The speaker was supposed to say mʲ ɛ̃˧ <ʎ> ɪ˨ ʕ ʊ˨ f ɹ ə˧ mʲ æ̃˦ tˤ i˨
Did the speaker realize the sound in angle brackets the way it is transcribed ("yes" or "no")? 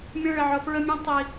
no